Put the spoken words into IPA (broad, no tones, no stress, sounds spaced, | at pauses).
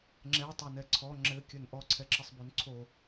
ŋ͡ǁ ɛ tˤ ɵ n ɛ ǀʰ ɔ ŋ͡ǁ ɘ kʲ ɵ n ʔ ɔ ǀʰ ɛ ǁ ə sˤ b o n ǀʰ o